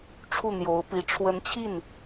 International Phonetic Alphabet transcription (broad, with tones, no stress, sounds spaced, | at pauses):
ʈ͡ʂʰ u˥˩ n̪ j o˧˥ ʊ̯ p i˧˥ ʈ͡ʂʰ w ə˧˥ n t͡ɕʰ i˥˩ n